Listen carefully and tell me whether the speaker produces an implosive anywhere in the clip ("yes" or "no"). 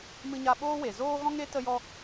yes